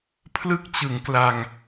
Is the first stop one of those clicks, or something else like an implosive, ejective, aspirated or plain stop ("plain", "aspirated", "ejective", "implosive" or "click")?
aspirated